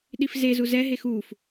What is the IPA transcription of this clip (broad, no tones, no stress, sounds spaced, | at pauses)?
ɗ i f z e z u z ɛ ɦ e x u f